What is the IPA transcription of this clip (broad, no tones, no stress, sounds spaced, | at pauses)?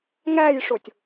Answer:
ŋ æ j ʂ ʊ tʲ